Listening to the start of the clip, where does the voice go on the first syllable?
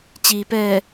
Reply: low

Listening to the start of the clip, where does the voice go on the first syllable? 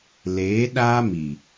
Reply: rising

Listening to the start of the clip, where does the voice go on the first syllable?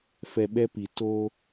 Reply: low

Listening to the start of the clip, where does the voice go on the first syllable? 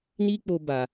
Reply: high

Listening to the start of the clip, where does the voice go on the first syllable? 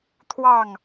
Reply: falling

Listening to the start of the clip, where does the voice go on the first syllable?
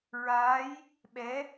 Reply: rising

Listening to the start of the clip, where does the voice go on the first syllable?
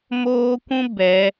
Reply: high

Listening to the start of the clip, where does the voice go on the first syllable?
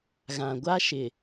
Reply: low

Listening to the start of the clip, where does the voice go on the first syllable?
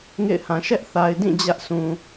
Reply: falling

